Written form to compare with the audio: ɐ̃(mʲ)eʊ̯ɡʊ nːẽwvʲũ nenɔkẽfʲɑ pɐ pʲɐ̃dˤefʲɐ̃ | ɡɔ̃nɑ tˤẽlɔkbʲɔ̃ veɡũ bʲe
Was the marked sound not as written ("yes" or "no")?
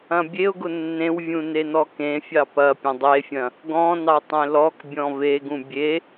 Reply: yes